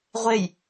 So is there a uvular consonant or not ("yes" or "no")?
yes